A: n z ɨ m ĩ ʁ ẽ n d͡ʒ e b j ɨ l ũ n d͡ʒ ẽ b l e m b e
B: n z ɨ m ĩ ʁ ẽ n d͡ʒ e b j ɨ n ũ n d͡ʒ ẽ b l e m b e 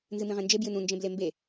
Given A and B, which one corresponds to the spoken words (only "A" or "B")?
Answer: B